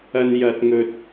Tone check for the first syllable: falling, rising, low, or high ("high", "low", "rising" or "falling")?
high